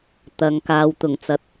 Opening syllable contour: low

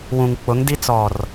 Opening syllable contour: low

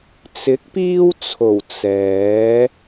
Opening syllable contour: rising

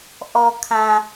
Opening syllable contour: low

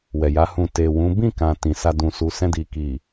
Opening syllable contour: low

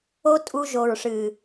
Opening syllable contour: high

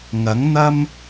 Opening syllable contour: rising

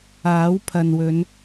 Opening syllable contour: rising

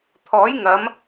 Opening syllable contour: rising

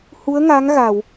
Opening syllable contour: rising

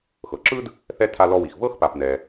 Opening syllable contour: low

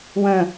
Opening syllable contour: falling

